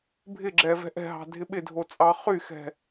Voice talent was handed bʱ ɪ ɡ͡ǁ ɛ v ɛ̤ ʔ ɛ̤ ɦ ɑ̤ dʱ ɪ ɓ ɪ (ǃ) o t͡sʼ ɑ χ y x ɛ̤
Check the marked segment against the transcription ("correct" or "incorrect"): incorrect